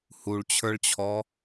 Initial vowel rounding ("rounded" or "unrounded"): rounded